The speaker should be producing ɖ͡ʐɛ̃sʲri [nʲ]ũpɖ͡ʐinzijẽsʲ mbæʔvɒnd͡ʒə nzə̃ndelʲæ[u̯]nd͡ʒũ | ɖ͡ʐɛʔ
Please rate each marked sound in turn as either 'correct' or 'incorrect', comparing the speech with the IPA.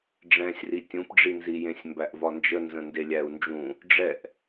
incorrect, correct

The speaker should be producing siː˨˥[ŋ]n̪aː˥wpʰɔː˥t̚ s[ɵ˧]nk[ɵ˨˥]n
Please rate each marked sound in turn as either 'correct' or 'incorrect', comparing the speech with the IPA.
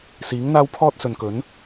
correct, incorrect, correct

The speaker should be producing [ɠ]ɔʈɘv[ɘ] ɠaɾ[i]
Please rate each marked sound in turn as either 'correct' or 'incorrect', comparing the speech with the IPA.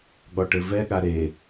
correct, incorrect, incorrect

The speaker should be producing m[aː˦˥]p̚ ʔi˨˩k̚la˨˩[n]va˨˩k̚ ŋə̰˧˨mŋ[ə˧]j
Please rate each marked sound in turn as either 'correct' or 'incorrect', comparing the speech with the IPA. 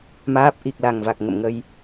correct, incorrect, correct

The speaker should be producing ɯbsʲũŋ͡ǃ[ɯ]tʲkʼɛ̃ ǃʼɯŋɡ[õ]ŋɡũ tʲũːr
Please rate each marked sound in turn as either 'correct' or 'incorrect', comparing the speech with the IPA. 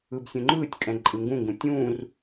incorrect, incorrect

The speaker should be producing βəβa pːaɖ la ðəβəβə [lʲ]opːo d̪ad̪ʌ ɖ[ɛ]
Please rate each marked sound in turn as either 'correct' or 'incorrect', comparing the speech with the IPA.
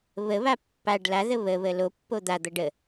incorrect, incorrect

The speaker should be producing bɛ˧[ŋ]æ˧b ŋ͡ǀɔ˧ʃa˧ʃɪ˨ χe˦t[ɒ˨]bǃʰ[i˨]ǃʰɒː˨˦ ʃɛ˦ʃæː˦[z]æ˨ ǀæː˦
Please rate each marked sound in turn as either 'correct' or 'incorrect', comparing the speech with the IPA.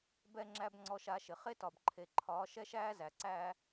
incorrect, correct, incorrect, correct

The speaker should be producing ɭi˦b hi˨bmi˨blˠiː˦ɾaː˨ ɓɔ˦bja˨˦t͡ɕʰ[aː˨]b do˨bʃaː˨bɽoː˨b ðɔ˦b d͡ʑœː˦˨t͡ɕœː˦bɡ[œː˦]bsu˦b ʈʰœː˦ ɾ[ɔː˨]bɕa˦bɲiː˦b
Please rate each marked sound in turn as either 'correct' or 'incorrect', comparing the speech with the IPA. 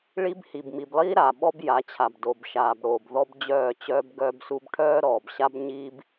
incorrect, correct, correct

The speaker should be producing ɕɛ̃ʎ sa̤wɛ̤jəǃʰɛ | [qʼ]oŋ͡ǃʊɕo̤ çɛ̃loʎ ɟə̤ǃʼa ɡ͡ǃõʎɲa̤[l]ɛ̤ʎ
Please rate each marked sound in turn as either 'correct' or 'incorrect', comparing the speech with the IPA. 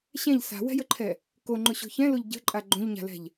incorrect, correct

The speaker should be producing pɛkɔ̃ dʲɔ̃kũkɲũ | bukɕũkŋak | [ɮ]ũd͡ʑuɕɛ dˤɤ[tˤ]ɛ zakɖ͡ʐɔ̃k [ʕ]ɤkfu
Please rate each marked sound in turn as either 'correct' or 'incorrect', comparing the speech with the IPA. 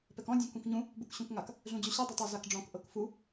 correct, correct, incorrect

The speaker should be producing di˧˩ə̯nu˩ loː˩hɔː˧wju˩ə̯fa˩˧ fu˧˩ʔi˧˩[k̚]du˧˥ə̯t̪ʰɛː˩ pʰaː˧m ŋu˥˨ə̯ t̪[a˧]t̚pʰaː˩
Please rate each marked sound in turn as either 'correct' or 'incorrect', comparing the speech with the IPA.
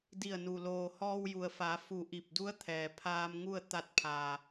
incorrect, correct

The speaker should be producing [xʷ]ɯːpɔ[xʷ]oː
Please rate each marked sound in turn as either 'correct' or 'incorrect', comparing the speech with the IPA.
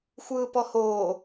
correct, incorrect

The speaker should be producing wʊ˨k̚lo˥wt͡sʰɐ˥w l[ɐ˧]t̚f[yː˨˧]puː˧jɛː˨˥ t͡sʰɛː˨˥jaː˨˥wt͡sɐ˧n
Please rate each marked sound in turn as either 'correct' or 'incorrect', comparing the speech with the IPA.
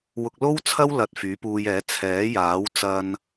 correct, incorrect

